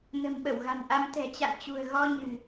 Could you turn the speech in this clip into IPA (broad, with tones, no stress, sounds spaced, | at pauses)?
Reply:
n ə̤˨˩ m ɓ ə˧˩ w ɣ a̤˨˩ n ʔ a˧ m t̪ ɛ̤˨˩ t͡ɕ a̰˧˨ n t͡ɕ ṳ˨˩ ə̯ ɣ ɔ˧ ɲ ɨ̤˨˩